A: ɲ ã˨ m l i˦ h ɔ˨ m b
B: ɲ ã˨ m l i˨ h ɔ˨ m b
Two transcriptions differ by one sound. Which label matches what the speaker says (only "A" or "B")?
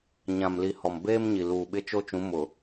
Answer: B